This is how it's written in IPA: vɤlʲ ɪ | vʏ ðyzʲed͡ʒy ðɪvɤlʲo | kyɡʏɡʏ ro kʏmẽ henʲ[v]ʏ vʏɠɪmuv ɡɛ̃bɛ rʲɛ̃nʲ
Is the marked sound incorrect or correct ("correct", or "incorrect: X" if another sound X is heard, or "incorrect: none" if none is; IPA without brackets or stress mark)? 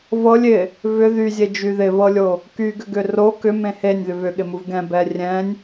incorrect: ð